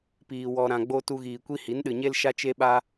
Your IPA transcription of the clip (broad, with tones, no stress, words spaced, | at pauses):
piː˨wɔ˨ɾã˨ɡ͡bo˧ tu˧ɣiː˨kʷi˦ hi˨˦nɗɨ˨ɲe˦l ʃa˦t͡ʃe˦ ɓa˦